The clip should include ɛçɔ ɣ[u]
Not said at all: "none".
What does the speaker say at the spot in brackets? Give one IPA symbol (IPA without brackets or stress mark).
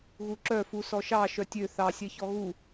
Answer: u